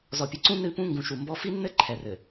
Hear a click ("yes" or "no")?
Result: yes